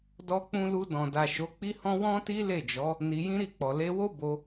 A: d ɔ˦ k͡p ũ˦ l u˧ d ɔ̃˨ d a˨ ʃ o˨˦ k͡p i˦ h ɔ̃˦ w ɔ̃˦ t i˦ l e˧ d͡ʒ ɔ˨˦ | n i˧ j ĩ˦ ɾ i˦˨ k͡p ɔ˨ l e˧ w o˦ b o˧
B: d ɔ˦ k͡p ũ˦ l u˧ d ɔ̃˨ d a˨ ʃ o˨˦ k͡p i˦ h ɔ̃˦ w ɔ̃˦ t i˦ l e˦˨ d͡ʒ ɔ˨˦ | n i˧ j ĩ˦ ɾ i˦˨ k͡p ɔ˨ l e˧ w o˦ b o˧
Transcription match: B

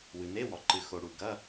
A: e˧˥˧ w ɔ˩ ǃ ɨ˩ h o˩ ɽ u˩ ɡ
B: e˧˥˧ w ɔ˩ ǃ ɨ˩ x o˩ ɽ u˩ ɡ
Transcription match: B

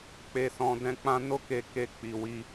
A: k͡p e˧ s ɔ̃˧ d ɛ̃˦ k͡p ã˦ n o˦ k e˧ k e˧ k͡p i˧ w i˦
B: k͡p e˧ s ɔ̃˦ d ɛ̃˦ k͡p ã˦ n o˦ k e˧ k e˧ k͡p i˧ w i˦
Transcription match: A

